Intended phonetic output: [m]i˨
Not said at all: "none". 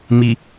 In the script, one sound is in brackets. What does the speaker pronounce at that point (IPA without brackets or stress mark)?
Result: m